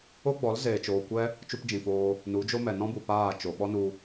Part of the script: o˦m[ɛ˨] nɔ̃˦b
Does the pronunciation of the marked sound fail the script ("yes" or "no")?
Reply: no